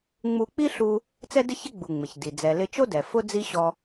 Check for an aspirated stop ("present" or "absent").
absent